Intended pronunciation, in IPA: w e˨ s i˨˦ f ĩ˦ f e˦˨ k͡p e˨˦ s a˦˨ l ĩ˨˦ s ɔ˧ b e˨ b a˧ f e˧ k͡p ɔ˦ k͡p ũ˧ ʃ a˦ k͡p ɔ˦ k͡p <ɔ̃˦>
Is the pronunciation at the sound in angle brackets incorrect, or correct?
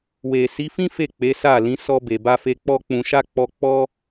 incorrect